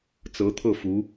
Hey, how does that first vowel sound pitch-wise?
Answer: rising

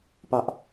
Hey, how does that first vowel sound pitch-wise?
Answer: high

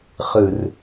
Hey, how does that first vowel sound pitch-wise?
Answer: low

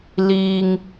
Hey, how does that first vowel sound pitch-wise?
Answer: low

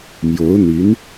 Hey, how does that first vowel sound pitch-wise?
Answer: rising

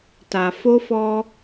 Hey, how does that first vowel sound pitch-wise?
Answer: low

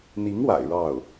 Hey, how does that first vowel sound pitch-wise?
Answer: rising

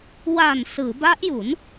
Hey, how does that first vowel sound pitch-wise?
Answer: low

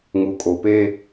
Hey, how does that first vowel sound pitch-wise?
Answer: low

